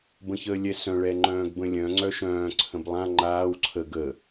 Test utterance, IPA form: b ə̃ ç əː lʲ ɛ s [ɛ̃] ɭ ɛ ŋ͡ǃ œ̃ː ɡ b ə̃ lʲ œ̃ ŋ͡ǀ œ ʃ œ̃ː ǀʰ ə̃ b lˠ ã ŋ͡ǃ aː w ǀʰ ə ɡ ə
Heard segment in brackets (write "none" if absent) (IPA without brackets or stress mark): œ̃